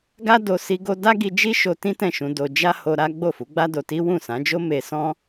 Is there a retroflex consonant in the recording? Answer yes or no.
no